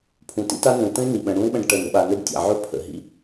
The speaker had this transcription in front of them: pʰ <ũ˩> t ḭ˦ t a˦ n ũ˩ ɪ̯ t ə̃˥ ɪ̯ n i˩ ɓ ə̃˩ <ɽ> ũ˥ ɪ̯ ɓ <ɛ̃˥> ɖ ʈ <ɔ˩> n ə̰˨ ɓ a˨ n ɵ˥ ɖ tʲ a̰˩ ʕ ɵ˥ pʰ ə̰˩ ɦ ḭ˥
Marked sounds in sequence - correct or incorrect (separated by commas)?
correct, correct, incorrect, incorrect